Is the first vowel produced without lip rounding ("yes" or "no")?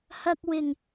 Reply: yes